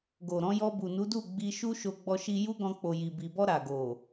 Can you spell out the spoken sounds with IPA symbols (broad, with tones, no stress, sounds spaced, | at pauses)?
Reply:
ɡ o˨ ɾ ɔ̃˨˦ j ɔ˧ b u˨ n u˨˦ d u˦˨ ɡ͡b i˧ ʃ u˦ ʃ o˧ ɡ͡b ɔ˧ ʃ i˧ j u˦ ɡ ɔ̃˧ k͡p o˨ j i˨ b i˨ b ɔ˧ ɾ a˨ ɡ o˨